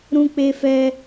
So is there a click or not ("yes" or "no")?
no